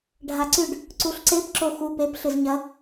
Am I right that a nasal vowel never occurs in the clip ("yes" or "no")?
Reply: yes